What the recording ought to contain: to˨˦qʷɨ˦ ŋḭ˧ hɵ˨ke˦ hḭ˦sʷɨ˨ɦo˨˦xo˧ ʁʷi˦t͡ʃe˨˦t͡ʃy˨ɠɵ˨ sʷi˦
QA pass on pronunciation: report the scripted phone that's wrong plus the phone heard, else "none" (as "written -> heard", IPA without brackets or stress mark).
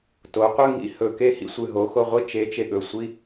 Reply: y˨ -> e˨